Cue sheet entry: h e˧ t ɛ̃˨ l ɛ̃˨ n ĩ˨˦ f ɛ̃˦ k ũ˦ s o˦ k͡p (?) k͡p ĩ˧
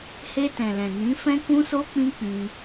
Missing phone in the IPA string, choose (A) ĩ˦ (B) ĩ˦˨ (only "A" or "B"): A